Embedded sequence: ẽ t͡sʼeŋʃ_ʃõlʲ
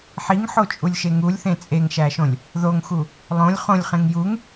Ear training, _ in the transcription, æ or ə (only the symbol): æ